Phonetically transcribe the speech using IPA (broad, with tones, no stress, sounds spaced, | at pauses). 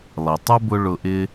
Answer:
lˠ i˨ tˤ u˦ b ʊ˧ ɭ ʊ˧ ʔ ɪː˦